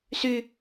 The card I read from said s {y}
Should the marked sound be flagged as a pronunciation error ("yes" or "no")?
no